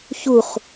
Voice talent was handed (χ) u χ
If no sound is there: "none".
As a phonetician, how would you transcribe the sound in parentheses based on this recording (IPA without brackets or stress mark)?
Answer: ç